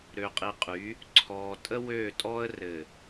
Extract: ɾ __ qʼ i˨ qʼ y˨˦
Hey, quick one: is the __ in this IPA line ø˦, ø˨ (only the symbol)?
ø˨